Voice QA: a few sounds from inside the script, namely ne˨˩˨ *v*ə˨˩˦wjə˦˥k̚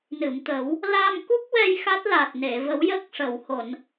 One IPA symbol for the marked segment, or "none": v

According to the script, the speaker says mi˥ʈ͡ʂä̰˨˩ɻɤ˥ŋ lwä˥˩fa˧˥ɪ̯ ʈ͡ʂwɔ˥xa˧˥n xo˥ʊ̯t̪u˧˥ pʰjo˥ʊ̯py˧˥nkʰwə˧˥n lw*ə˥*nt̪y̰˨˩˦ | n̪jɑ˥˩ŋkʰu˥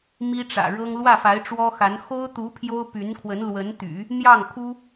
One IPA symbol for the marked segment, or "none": ə˧˥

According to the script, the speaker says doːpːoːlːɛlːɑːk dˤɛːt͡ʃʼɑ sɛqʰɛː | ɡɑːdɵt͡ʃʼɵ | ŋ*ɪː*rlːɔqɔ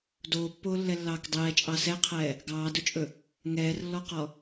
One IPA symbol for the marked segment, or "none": ɛː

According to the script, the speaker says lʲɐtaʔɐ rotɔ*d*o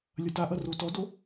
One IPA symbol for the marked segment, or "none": d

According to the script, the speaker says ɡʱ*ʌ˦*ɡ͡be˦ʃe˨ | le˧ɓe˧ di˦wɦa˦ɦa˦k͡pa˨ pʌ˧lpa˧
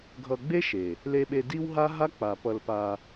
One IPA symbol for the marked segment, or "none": ʌ˧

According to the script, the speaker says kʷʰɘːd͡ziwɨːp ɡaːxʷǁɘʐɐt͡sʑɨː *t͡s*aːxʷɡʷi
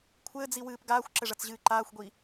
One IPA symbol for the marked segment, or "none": ǃ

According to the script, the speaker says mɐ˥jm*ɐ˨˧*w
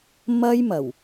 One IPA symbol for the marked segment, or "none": ɐ˨˩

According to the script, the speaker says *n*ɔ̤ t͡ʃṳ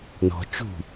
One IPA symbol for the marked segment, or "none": n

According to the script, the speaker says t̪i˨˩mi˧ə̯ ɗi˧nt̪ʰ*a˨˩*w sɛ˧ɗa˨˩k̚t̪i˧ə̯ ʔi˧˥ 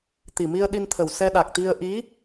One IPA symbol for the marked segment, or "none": ə˨˩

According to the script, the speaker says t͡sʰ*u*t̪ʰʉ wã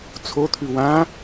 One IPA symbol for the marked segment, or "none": o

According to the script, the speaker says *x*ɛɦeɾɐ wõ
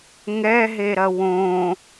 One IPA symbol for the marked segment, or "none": ŋ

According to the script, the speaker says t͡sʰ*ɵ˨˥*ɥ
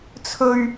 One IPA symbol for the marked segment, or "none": ɵ˧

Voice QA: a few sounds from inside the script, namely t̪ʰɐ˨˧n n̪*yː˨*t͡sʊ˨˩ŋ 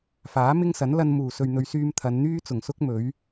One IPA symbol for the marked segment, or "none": yː˥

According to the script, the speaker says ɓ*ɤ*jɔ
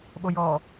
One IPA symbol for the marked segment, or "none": o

